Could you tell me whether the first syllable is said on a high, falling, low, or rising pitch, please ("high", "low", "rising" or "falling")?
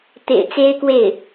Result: low